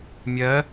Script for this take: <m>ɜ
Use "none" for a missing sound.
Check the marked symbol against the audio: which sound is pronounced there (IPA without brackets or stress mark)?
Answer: mʲ